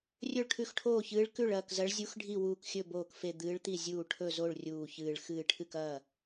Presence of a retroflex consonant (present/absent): present